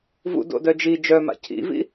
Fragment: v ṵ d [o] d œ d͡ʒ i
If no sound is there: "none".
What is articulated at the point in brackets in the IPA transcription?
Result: o̰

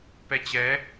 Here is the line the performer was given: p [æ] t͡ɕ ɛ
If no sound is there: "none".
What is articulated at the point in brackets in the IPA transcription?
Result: ɛ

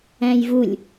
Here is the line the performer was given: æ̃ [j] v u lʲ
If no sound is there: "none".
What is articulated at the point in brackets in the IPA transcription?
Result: j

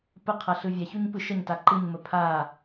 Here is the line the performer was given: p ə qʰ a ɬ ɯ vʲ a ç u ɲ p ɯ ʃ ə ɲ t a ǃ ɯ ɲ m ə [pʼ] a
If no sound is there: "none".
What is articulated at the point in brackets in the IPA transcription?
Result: pʰ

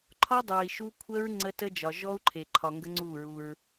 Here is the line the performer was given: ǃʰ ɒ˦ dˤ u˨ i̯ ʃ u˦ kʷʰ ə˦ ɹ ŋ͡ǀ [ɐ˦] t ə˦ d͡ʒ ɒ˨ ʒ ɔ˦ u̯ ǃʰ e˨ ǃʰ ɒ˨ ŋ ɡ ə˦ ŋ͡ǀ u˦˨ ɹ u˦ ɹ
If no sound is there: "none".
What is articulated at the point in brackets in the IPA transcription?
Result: ə˦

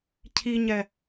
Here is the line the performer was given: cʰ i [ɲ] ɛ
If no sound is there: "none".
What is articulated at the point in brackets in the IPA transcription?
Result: ɲ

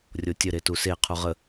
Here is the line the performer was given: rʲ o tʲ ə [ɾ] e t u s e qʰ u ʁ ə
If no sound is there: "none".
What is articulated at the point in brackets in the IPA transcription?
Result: ɾ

